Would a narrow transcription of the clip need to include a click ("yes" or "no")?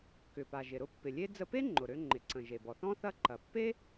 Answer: yes